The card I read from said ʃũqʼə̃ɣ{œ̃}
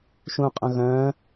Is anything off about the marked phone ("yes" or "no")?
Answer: no